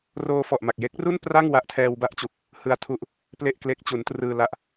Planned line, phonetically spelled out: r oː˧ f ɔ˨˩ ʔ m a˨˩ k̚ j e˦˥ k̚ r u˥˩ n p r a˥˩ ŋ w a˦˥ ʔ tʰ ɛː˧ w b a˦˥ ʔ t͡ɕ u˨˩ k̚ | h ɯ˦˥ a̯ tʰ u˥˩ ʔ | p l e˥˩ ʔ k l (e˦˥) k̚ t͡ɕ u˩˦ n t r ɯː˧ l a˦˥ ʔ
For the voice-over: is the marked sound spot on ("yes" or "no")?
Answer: yes